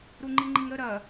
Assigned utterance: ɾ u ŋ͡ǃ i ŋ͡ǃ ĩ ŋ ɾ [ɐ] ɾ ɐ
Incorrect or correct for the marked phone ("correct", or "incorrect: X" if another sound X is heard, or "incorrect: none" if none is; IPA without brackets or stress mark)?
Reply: incorrect: ə